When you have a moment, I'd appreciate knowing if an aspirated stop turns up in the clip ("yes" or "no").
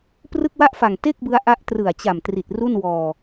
no